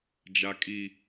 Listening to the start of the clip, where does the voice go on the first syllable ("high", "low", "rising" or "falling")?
high